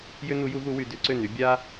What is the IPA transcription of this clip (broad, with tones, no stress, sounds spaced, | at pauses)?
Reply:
j ʏ˥ n u˨˥ j u˨˥ ɣ u˨˥ w y˩˧ d ʏ˨˥ ǀ ʏ˥˨ n y˨˥ bʲ a˥